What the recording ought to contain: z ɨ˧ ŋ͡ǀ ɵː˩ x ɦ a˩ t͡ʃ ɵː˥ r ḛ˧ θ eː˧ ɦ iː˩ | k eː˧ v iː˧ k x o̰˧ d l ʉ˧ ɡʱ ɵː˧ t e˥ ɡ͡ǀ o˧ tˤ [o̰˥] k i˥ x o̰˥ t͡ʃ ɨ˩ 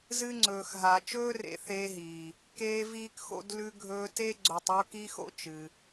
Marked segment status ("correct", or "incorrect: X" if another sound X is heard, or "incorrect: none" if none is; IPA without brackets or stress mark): incorrect: o˥